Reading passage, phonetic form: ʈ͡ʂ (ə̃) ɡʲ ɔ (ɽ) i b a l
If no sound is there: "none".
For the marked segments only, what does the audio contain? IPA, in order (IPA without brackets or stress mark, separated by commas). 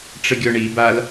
ə, ɳ